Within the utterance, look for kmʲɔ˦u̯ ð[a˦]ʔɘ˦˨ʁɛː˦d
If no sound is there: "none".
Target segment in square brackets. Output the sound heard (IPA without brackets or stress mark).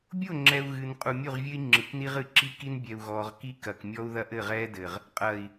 ɐ˦